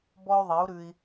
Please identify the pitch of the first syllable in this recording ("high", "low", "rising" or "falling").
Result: high